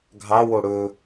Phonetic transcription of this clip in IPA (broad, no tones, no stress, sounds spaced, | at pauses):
ɡʱ ɑ w o ɽ ɵ